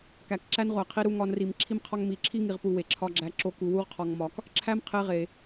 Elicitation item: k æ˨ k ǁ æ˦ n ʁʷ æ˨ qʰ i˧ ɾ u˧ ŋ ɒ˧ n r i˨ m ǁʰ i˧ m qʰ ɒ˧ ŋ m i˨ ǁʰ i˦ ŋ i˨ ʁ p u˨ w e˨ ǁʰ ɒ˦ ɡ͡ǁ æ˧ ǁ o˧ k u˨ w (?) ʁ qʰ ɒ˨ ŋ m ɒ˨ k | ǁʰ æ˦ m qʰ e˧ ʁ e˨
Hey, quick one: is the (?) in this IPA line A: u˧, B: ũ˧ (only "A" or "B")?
A